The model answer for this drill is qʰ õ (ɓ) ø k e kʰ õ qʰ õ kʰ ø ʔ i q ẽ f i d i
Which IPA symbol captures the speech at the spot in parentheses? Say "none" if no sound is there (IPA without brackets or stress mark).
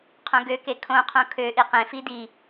ɡ